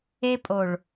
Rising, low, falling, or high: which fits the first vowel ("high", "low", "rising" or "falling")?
high